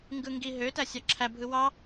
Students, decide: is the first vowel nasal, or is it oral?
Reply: oral